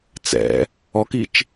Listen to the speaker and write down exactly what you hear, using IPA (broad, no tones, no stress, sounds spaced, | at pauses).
t͡s ɛ̰ | ɔ k i t͡ʃ